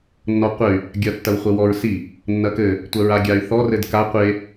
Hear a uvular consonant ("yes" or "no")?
yes